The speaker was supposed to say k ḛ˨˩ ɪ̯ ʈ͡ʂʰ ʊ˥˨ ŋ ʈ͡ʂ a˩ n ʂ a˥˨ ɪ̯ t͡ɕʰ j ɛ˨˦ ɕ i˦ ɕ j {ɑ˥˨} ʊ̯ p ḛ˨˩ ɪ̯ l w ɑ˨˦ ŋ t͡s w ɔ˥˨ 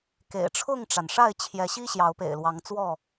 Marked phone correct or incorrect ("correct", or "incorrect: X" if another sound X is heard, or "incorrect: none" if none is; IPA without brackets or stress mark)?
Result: incorrect: ɑ˨˦